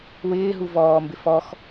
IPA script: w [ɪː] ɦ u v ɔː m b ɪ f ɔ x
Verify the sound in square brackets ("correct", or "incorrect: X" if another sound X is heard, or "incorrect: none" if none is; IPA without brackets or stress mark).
correct